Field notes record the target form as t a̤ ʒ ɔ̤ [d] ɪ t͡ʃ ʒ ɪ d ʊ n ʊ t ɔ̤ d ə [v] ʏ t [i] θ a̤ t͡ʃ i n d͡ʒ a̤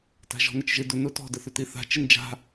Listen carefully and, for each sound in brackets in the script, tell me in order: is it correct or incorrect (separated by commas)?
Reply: incorrect, incorrect, correct